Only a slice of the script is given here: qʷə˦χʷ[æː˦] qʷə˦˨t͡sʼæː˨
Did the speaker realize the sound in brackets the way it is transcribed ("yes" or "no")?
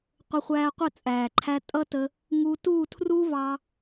yes